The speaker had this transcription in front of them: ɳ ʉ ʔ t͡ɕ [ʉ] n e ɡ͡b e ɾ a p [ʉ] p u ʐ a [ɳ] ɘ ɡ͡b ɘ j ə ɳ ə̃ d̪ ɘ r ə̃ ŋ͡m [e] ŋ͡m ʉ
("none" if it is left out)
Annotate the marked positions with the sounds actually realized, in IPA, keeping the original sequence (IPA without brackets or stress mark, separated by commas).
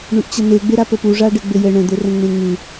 ə, ə, ɖ, ẽ